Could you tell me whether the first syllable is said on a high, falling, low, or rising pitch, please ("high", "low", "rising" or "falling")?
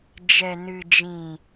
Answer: low